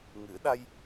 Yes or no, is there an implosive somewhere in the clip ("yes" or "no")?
yes